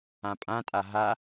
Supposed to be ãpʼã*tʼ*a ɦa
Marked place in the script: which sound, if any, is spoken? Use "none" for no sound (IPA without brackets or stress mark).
tʼ